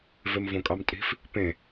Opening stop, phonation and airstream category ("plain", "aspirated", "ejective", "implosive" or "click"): ejective